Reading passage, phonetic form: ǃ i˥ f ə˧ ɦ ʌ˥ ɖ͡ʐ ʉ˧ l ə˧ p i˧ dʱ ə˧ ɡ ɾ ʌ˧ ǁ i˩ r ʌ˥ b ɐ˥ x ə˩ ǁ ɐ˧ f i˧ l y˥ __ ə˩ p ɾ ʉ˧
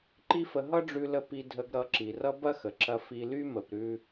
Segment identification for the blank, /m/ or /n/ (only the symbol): m